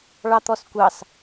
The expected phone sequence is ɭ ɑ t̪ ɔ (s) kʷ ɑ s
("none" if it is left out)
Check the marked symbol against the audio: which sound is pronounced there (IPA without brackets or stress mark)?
s